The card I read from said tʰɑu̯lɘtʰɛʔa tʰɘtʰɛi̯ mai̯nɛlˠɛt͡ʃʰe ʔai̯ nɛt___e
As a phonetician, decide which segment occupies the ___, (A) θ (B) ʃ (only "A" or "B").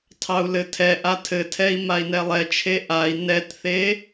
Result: A